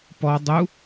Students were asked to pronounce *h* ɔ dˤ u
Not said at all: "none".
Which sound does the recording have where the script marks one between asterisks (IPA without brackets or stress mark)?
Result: p